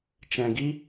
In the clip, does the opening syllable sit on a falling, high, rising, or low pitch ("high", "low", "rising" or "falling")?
low